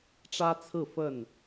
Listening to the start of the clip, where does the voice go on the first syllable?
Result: high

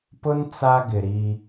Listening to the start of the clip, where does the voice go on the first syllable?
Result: high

